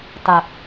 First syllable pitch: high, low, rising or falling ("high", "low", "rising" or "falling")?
low